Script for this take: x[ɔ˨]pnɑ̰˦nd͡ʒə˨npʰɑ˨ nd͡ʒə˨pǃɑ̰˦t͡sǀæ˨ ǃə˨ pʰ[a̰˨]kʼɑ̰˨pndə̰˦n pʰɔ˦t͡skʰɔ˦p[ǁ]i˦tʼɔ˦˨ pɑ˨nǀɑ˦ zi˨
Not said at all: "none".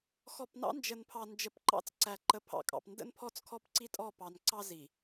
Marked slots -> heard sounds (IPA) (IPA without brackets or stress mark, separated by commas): ɔ˨, ɑ̰˨, ǀ